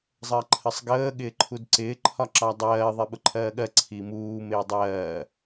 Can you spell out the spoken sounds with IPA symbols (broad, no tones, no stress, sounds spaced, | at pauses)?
zˤ ɜ ǃʰ ə sˤ ɡ əː ɠ ɪː ǃʰ u d ǀ ɪː ǃʰ ɒ ǁ ɑ dˤ ɜː ðˤ i ɓ ʊ ǃʰ ɜː ɠ ɜ ǀʰ i m uː m ɪː dˤ ɜː